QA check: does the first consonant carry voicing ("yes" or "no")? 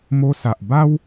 yes